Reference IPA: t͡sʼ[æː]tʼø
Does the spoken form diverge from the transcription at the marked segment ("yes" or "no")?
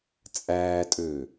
no